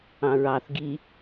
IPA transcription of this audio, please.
ɑ̃ɹɑθ ɡi

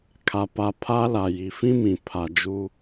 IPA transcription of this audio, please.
kʰa˨pa˨ pʰa˦la˨ ji˨fĩ˦mĩ˨ pʰa˨d͡ʒu˦

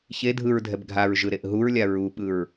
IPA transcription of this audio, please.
çe dʱɯɹdʱɛb ɡʱaɹʒɯɾeʔ ɦuɹlʲa ɹuɓɯɹ

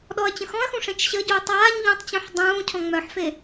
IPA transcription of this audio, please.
ɗɔɐ̯t͡ɕə̃xɔ̃ɐ̯xũ ʂẽt͡ʃɕəɟuː tˤaːɲ ʎõtˤt͡ɕõħ dˤũː cʰɔ̃ŋ͡mœħfe

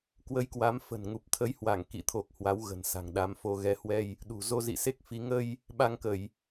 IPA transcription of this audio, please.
kwə˨˦jkwa˨˦mfə̤˨˩nŋu˨˩p̚ t̪ʰə˨˦jhwa˧˩ŋ kḭ˧˨t̪ʰo˨˩k̚ hwa˨˦wɣə̤˨˩nsa̤˨˩ŋ ɗa˨˦mfo˧ ɣɛ˨˦hwɛ˧j | ɗṳ˨˩zo˧zḭ˧˨ se˦˥k̚fi˨˦ ŋə˧j | ɓa˧ŋ kə˧˩˨j

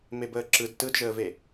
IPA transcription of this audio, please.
mebəːǁɯd tɯdʒəːve

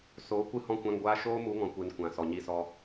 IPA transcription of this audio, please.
so˨˦ kʷɨ˧hɔ̃˧kʷã˧ŋɡʷaː˧ ʃoː˦mu˨˦ŋɔ̃˨kʷe˨n kʷã˨sɔ˨ɲi˧sɔ˧

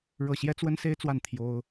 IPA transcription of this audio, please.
ɻɤ˥˩ ɕjɛ˥t͡swə˥nse˥ɪ̯t͡swa˥˩n t̪ʰjo˥ʊ̯

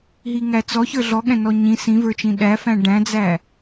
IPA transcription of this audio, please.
ɦiŋæt͡sɔçə˞ ɮɔɠɛ̃nɔ ɲĩ sĩvə˞t͡ʃĩ ɗæfæ̃ ɖæ̃d͡zæ

